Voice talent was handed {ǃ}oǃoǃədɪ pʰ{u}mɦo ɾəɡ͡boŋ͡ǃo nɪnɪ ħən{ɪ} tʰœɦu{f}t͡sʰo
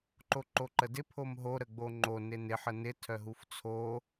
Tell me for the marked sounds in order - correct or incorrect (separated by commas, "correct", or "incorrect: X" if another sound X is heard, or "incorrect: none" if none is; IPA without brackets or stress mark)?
correct, incorrect: o, correct, correct